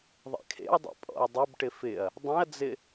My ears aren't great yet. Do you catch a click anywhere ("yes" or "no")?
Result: no